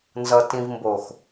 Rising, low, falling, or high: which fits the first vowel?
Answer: low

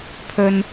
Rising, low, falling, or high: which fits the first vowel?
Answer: high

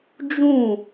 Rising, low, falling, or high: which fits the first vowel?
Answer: falling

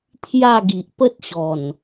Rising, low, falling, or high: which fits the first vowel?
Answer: falling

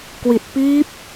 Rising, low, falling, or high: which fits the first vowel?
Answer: low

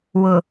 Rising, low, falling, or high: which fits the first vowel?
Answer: low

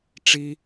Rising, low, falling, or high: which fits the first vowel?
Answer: low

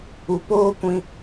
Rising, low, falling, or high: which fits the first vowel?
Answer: low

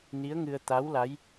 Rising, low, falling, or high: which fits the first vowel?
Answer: rising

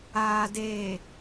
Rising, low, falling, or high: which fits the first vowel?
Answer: low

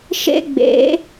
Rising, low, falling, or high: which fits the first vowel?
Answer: high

